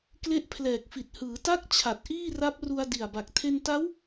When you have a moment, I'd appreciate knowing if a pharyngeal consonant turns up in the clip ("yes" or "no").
no